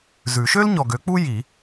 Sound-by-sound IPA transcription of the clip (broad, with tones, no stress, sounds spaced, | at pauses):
z ʉ˨˩˦ ʃ ø˥ l ɲ ɔ˨ ɡ ø˨˥ k͡p u˥ j i˨˩˦